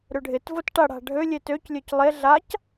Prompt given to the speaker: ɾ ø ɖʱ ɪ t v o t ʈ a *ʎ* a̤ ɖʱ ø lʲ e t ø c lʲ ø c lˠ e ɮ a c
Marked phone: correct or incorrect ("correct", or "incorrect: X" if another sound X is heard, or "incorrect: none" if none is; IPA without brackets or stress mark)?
incorrect: ɽ